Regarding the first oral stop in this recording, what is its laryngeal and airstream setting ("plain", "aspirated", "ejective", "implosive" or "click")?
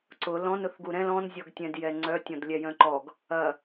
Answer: click